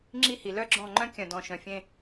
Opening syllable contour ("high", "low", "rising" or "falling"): falling